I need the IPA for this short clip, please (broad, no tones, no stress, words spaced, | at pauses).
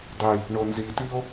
dˤi | ɳonzitio̯